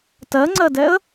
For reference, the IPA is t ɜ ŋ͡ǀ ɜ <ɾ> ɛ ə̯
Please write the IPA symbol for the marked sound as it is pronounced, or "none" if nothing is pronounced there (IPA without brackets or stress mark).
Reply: d